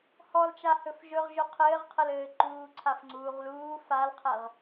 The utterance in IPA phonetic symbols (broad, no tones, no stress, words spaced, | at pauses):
hɔlt͡ʃa hɵfʒɵʁʒɵ qʰɘːʁqʰəlɘː ǃuː ǀʰafŋ͡ǀuːʁluː falqʰɛʁ